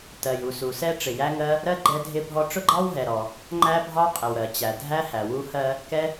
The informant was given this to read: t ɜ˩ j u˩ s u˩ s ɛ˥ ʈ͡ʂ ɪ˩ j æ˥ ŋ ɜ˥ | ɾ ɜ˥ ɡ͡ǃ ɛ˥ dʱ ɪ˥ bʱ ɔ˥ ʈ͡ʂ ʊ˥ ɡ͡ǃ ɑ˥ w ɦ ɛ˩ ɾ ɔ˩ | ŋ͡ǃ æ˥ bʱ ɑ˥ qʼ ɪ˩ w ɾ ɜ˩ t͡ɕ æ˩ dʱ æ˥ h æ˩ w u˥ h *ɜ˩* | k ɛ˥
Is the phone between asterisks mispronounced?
yes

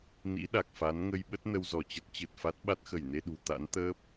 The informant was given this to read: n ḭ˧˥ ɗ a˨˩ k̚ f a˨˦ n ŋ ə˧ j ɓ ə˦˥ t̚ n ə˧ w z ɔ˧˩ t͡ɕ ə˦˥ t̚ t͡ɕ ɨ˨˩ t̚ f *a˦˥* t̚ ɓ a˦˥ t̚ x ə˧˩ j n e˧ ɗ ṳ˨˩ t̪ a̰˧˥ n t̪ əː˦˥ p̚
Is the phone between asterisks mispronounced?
no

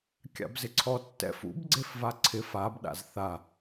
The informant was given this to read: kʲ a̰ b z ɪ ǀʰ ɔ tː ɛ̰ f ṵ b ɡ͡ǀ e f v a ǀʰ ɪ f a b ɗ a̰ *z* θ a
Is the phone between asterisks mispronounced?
no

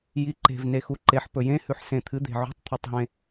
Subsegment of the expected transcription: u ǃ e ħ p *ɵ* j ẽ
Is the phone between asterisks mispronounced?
no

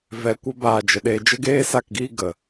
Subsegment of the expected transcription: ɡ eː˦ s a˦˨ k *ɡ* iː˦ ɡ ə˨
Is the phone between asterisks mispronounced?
no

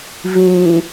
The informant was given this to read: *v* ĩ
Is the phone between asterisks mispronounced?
no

